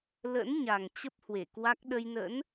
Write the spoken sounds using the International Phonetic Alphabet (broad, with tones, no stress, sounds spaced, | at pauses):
l ə̰˧˥ n ɲ a˨˩ ŋ t͡ɕ ə˦˥ p̚ h w e˧˩ k w a˦˥ k̚ ɗ ə˧ j n ə̰˧˥ n